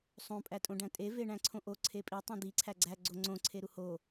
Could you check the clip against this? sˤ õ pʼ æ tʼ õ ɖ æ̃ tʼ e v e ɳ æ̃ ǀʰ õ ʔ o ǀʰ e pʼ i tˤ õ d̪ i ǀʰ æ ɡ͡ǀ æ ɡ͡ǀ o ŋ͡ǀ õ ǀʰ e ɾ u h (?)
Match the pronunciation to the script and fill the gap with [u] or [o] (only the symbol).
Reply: o